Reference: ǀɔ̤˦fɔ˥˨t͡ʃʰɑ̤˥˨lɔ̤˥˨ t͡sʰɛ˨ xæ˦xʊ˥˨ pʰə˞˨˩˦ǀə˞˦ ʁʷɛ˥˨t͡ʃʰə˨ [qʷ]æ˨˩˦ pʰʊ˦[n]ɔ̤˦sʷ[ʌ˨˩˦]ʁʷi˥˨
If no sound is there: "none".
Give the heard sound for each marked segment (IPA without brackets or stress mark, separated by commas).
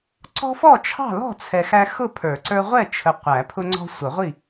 qʷ, ŋ͡ǀ, ʌ˨˩˦